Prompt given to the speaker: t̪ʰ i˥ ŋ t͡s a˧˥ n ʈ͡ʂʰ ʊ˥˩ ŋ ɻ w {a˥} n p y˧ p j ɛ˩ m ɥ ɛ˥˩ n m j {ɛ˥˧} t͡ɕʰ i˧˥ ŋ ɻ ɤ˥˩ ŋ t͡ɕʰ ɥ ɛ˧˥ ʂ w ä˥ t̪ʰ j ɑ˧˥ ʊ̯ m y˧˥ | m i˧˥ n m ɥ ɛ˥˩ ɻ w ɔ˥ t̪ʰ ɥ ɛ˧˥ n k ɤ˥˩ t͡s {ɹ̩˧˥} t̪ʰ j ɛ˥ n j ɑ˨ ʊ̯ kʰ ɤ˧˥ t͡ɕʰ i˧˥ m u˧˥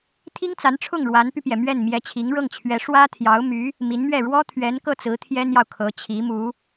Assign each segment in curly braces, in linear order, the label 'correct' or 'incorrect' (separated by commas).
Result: incorrect, incorrect, correct